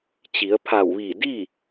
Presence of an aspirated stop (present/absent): present